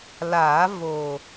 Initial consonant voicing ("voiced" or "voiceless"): voiced